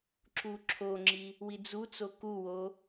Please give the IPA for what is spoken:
ǁ u ǁʰ o ŋ͡ǁ i | w i d͡z u t͡s o k u w o

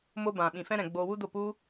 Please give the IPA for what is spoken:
m o˧ b ã˨ ɓ ĩ˨ f ɛ̃˧ ɾ ɛ̃˨ ɡ͡b oː˧ w u˦ d o˦˨ p u˦

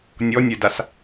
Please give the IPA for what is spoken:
nʲ ɔ nʲ ɛ d a s

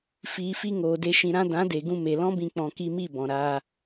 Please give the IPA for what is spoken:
f iː˨ f i˧ ŋ oː˨ d e˧ ʃ ĩ˨ ɾ ã˧ d ã˨˦ d e˨ ɡ ũ˧ m e˨ l ɔ̃˦ b ĩ˧ k͡p ɔ̃˧ k i˧ m i˦˨ b ɔ̃˨ ɾ aː˧

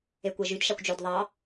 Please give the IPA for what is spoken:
e kʷ æ ʒ y d ʃ ɑ kʷ d͡ʒ ø d ðˤ ɑ

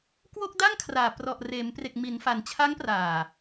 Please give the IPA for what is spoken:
k w o˥˩ k̚ d a˥˩ ŋ kʰ r aː˨˩ p r ɔ˨˩ ʔ r eː˩˦ m p r e˨˩ k̚ m i˩˦ n f a˩˦ n t͡ɕʰ a˦˥ ŋ p r aː˨˩

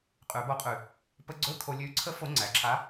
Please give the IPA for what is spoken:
qʼ ʉ˨˩˦ b o˧˥ qʼ ʉ˨˩ | p ə˧ ɡ͡ǀ ɵ˧˥˧ kʰ o˧ lʲ ʉ˧˥ ǀʰ ə˧˥ f o˧˥ ŋ͡ǀ æ˨˩ ǁʰ a˧˥

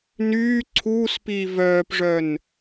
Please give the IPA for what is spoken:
n yː ǀʰ uː s p iː v œː p ʐ œ n

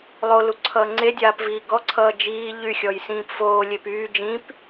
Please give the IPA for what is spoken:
lˠ o l u ǀʰ ʌː ŋ͡ǀ e dʲ aː p v iː ɡ ɔ ǀʰ ʌː d͡ʒ iː ʎ y xʲ ɔ j s ĩː p f oː lʲ e p yː d͡ʒ ĩ p

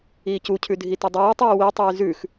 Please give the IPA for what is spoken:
iː c u cʰ ʉ dʱ i t ɐ dˤ ʉː tˤ iː w i tˤ ʉː z ʉ x

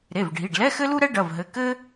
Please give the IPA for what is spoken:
ɾ e˩˧˩ v ɖʱ i˩˧˩ ɖ l ɛ˧˥˧ x ɘ˥ l u˥ ɾ ɛ˥ ɖ ɐ˩˧˩ v ɦ ɘ˩˧˩ k ɘ˥

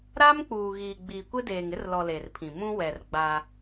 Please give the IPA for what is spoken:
ɾ a˦ m k͡p uː˨ ɣ iː˨ ɡ͡b i˨ kʷ ɪ˦ d eː˨ ŋ ɪ˦ r l ɔ˨ l e˨ r pʰ ĩ˨ m ũ˦ w ɛ˨ r ɡ͡b a˦

